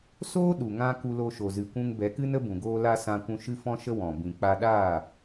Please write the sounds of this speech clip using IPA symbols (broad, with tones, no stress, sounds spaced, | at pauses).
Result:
s oː˦ ɗ u˨ ŋ ã˧ k u˧ l o˧ ʃ o˨ z ɨ˨ kʷ ũ˧ ŋ b ɛ˨˦ k ɨ˦ n ə˦ b ũ˨ ɡ oː˧ l a˧ s ã˧ kʷ ũ˧ ʃ ɨ˦ f ɔ̃˦ ʃ ə˦ w ɔ̃˨ b ĩ˨ k͡p a˧ ɗ aː˦˨